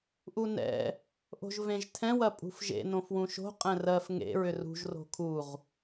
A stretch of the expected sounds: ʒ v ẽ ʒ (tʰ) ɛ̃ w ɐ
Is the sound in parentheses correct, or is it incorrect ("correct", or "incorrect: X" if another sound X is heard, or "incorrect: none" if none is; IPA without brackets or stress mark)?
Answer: correct